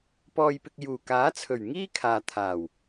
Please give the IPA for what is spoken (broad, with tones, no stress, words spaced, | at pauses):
pɔː˧jpɪ˧k̚ juː˨˩kaː˨˥t͡sʰɵ˨˩ɥ ŋiː˥kʰaː˨ t̪ʰaː˨˩w